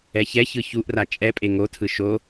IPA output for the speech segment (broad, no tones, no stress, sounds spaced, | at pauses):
ɛ ç ɛ ç ɯ ç u ʔ r a t͡ʃʼ ɛ pʼ e ŋ o tʰ ɯ ʃ o